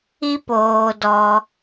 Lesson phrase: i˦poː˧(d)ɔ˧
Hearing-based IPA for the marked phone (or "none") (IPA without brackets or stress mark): d